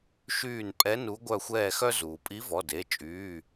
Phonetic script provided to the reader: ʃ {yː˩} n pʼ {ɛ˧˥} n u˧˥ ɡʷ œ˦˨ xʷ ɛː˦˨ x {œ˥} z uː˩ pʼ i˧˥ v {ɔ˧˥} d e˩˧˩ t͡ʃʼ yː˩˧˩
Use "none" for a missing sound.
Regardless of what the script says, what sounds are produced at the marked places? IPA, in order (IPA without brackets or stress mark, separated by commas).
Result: yː˦˨, ɛ˧˥, œ˥, ɔ˩˧˩